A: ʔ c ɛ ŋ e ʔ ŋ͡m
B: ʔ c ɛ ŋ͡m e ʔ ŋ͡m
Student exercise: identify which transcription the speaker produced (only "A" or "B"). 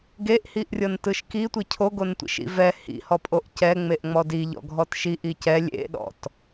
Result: B